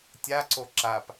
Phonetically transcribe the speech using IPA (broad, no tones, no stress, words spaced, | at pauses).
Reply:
tʲa ǀoǁap